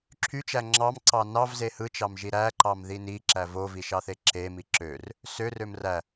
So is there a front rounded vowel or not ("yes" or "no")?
yes